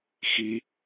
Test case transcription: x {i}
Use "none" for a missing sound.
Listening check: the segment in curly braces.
i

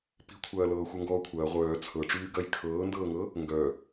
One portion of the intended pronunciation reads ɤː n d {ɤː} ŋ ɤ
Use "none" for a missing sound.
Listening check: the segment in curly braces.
ɤː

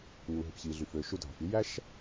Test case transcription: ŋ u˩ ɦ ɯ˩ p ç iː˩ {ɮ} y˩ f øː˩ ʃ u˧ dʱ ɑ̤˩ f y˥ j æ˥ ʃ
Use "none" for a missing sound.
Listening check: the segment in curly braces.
ɮ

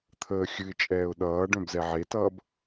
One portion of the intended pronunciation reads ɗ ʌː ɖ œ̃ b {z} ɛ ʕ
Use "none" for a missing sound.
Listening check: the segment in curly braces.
z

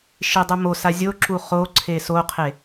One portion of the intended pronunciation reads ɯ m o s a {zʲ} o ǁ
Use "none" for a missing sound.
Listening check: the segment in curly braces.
zʲ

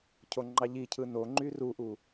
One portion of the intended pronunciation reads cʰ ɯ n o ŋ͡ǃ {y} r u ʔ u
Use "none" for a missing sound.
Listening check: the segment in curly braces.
y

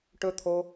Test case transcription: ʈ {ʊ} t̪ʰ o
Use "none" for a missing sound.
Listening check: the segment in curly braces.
ɵ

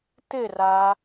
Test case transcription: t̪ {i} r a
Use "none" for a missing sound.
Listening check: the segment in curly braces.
ɪ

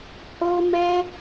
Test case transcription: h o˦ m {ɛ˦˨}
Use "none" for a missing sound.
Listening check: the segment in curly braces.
ɛ˦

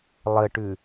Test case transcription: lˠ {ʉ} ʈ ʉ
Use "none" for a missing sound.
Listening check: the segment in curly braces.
ə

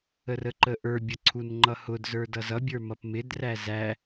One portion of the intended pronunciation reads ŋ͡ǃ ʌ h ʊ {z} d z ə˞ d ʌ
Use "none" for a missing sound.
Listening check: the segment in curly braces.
none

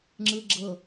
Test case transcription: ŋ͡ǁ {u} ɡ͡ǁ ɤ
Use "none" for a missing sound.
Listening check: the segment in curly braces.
ɯ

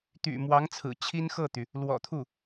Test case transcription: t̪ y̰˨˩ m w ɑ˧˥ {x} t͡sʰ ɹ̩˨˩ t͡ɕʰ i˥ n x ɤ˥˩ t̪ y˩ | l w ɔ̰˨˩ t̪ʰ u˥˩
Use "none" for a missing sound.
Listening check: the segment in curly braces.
ŋ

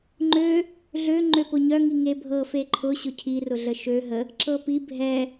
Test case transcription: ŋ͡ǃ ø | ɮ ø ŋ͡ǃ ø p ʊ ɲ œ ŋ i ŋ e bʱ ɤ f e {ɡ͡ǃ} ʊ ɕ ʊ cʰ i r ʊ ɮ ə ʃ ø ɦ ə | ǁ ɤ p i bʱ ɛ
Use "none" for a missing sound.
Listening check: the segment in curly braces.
ǃʰ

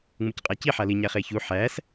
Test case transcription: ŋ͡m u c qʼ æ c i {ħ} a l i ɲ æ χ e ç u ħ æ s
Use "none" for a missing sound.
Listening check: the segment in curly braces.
ħ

